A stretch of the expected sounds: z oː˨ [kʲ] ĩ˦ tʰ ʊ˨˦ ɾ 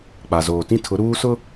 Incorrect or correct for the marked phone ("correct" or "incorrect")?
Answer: incorrect